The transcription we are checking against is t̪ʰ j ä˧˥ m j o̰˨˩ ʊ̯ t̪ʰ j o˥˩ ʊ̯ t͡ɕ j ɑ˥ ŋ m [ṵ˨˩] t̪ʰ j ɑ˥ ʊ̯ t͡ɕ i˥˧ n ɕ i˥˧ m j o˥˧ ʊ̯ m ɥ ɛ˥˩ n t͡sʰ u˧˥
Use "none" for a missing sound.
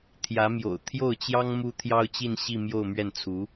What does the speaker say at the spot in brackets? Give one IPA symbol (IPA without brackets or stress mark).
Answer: u˥